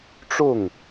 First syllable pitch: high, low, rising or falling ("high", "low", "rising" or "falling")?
falling